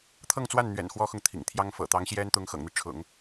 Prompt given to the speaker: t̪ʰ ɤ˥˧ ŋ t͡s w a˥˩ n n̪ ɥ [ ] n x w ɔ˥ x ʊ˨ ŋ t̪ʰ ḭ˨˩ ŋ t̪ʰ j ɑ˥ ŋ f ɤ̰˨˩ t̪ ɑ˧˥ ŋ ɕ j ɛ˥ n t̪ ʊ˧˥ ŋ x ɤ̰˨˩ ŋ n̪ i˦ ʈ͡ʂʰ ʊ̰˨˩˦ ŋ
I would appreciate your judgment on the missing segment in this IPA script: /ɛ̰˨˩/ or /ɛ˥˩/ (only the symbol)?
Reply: ɛ̰˨˩